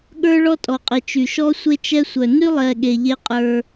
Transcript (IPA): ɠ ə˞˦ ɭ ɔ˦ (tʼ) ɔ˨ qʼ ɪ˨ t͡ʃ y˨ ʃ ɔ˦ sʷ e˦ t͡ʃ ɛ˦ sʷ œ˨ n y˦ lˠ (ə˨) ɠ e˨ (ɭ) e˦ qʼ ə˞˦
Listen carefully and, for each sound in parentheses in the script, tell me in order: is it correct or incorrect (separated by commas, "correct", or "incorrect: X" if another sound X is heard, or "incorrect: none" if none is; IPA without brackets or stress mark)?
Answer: correct, incorrect: ɛ˨, incorrect: ʎ